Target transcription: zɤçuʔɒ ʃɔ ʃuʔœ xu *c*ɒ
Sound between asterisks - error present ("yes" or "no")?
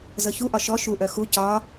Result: no